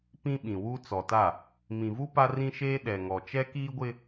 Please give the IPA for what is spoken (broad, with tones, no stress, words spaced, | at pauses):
pĩ˦ɓĩ˨wu˦ t͡sɔ˨ta˦˨ | mĩ˨vu˦ pa˦rĩ˦ʃeː˦ ɗɛ˨ŋɔ˨t͡ʃɛ˦ kiː˦ɡʷɪ˦